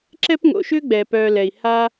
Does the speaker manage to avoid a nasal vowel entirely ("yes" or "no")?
yes